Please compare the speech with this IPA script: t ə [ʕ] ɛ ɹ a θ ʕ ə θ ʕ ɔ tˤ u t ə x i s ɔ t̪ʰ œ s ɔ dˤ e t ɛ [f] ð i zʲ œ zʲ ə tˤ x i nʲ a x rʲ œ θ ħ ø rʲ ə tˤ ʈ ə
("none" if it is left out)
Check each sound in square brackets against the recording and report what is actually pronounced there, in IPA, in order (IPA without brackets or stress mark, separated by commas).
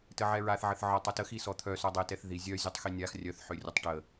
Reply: ʕ, θ